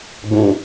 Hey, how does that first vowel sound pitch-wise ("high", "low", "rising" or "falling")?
low